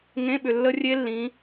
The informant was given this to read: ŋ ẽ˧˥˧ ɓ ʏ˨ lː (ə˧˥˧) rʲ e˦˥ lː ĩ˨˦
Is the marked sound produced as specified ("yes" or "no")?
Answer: no